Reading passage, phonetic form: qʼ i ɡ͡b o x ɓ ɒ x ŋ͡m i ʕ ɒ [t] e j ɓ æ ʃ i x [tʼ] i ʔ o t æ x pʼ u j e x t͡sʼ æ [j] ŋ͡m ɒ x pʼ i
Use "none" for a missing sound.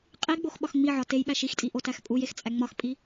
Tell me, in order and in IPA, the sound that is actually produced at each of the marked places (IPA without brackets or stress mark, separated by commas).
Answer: t, tʼ, none